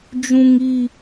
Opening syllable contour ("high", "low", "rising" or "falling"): high